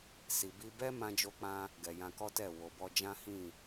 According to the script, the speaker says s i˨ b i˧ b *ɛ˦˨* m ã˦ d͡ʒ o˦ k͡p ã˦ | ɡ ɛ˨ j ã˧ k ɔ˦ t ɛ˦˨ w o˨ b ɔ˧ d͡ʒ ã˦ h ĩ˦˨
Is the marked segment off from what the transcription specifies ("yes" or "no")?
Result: yes